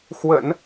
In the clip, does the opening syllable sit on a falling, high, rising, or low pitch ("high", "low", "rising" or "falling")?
low